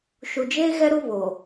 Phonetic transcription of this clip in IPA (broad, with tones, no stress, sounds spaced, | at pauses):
ʃ u˨ d͡ʒ eː˦ ɣ ɛ˦ ɾ u˦ β o˨